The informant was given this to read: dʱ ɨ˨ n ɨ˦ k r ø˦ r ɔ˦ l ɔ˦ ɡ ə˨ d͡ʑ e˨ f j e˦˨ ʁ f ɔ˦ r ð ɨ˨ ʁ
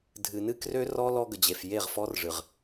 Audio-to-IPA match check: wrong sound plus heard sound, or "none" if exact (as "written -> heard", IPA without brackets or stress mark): ð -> ʐ